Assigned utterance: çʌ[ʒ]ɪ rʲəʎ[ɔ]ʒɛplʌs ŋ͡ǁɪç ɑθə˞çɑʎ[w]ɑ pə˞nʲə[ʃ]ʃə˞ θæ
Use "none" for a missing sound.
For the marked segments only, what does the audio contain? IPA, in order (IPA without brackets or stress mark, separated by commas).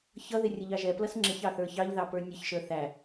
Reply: ð, ɑ, ð, ç